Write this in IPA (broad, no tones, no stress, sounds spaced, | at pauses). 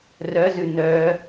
r œ z ʉ n œ